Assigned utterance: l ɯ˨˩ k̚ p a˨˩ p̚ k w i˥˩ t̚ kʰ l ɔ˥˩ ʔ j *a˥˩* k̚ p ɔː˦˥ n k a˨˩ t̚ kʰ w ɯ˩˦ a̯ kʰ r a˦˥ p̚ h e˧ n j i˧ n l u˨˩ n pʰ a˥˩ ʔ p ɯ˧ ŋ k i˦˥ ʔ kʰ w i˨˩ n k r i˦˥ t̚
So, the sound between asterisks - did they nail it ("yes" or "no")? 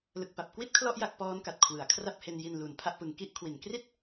yes